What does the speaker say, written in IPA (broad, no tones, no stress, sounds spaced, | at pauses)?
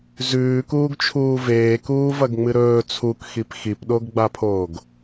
z ʉː k uː ɡ t͡ʃʰ uː v eː k uː v ɐ ɡ ŋ͡m ɨ ɾ ɵː t͡sʰ u k x i p x i p ɗ o ɡ ɡ͡b a pʰ oː ɡ